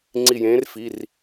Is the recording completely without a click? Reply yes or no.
no